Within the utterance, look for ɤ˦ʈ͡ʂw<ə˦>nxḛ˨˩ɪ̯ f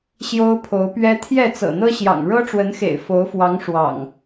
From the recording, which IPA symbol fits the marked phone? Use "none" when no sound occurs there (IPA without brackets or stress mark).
ə˨˦